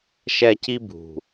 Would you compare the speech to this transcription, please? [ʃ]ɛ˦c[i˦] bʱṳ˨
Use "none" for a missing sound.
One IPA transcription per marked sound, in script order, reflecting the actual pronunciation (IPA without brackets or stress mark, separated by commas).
ʃ, i˦